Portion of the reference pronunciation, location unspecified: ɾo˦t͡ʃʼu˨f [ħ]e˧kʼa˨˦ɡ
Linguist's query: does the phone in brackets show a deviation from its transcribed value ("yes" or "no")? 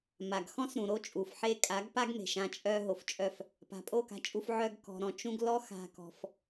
no